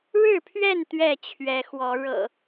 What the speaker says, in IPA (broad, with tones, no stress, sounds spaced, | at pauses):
ɻ ɻ̩˥˨ pʰ ɥ ɛ˥˨ n t̪ ɥ ɛ˥˨ t͡ɕʰ ɥ ɛ˨˦ x w ɔ˨˦ ɻ ɤ̰˨˩